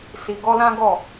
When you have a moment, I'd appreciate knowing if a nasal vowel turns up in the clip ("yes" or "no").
yes